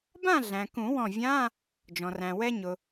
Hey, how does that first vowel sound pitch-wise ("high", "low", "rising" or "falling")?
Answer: falling